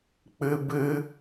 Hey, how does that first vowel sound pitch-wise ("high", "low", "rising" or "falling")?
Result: high